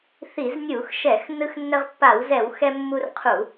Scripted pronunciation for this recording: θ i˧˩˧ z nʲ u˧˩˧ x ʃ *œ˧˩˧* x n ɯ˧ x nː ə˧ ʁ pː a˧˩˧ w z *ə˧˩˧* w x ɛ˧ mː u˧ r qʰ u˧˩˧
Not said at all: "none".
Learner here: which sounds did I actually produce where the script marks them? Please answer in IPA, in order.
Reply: ɛ˧˩˧, ɛ˧˩˧

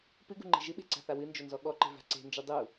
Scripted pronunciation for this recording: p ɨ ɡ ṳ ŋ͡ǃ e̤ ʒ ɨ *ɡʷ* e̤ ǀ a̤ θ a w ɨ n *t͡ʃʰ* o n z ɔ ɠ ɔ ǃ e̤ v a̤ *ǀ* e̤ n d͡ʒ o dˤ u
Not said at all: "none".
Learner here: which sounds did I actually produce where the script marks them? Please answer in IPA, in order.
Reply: ɓ, d͡ʒ, ǀ

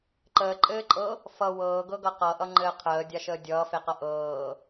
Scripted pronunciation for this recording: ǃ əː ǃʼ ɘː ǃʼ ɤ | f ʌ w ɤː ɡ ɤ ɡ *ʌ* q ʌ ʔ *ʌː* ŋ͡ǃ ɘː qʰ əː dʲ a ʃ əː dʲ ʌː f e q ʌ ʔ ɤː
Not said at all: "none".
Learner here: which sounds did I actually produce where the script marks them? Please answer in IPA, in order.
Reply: ʌ, ʌ

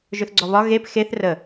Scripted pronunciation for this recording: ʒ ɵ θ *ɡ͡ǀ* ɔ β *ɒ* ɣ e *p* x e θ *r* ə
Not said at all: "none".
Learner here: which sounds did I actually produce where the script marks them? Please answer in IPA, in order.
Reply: ɡ͡ǀ, ɒ, p, r

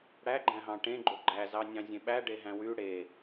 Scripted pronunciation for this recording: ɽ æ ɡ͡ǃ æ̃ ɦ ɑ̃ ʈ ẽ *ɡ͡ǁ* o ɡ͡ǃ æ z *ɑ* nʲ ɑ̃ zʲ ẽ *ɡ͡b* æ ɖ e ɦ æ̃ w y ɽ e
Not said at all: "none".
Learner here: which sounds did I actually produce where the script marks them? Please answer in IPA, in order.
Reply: ɡ͡ǃ, ɑ, ɓ

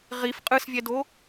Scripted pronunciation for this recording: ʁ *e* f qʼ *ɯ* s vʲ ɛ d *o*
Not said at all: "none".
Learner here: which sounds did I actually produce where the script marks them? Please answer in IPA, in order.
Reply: i, ɯ, o

